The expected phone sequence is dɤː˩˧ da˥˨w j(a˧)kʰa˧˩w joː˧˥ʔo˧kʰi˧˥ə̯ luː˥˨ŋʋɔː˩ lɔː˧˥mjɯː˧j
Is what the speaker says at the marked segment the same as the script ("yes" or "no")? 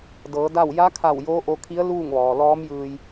no